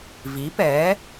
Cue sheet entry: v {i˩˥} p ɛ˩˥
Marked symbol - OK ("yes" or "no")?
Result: yes